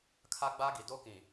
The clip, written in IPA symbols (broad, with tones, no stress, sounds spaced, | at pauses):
kʰ a˦ ɡ͡b a˦ ɡ i˨ d o˦ k ĩ˨